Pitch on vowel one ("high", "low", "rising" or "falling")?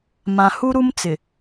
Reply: low